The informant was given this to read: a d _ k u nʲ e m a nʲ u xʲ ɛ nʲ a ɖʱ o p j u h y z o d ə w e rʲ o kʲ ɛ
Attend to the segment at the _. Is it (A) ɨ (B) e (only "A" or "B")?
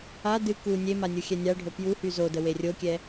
A